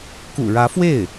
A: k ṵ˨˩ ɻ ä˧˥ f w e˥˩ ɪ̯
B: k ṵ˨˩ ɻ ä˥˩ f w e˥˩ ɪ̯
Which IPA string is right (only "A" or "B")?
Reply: A